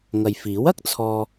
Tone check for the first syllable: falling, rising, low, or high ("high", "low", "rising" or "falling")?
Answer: low